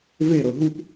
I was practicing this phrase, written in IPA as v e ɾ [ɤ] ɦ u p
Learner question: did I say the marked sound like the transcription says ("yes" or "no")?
yes